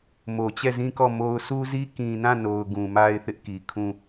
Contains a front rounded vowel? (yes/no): no